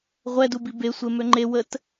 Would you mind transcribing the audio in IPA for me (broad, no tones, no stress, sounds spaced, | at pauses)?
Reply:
ʁʷ ɛ d u b i b e sʷ e m ø ŋ͡ǃ e w ə t